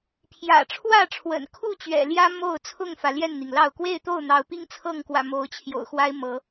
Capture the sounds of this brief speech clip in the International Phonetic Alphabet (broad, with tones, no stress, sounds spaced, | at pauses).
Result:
pʰ j ä̰˨˩ ʈ͡ʂʰ w ä˥˨ ʈ͡ʂʰ w ə̰˨˩ n kʰ u˥˨ t͡ɕ ɥ ɛ̰˨˩ l j ä˦ m o˥˨ ʊ̯ t͡sʰ ʊ˥˨ ŋ f ä˩ l j ɛ˥˨ n n̪ i˩ ŋ l ɑ˥˨ ʊ̯ k w e˥˨ ɪ̯ t̪ o˥˨ ʊ̯ n̪ ɑ˨˦ ʊ̯ p i˦ ŋ t͡sʰ ɤ˥˨ ŋ k w ä̰˨˩ m o˨˦ ʊ̯ t͡ɕʰ j o̰˨˩ ʊ̯ x w a˦ ɪ̯ m ɤ˨˦